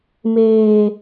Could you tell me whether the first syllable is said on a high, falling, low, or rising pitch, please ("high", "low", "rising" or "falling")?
low